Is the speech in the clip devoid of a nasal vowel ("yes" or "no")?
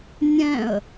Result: no